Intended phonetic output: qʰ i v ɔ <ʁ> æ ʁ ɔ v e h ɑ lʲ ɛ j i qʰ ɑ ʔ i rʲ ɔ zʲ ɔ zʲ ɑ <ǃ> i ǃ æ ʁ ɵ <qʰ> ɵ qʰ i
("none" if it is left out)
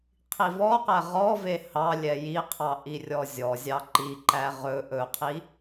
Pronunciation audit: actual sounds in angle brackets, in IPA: q, ǃ, ʔ

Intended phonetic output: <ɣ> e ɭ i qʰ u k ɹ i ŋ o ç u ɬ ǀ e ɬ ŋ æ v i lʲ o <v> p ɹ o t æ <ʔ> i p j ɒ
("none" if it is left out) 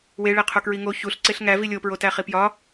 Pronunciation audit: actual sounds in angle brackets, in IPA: w, none, χ

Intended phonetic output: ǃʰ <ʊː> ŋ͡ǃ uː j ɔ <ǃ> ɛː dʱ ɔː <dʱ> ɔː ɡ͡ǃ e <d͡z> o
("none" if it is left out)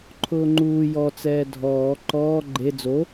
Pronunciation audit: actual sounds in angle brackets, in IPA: ʊː, t͡s, ǃ, d͡z

